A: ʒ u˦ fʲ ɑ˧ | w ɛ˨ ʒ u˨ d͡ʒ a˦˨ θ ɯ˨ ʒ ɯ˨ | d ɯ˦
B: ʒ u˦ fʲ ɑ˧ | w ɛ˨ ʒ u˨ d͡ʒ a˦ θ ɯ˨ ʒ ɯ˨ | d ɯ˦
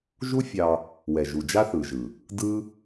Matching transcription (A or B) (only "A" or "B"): B